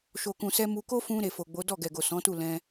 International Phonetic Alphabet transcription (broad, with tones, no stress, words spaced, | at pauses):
ʃo˨kũ˨sɛ˧ mu˧ ko˦fũ˧ ɾe˨fo˨ɡ͡bo˨˦ dɔ˦˨ɡɛ˨ɡo˨ sɔ̃˨˦tu˦˨lɛ̃˧